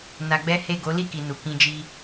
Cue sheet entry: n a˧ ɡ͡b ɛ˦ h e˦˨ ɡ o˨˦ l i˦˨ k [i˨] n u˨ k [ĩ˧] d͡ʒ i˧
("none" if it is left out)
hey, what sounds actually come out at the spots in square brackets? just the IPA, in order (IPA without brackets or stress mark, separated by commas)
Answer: i˨, ĩ˧